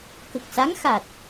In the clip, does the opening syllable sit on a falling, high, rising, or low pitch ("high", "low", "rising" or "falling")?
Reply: low